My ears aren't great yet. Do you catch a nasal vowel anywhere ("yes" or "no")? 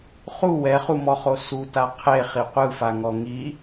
no